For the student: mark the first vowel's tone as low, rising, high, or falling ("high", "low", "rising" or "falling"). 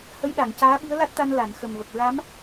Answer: rising